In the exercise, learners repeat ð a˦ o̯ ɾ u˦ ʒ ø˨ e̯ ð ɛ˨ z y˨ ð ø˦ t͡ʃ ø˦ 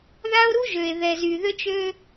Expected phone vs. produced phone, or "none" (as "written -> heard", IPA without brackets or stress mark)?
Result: none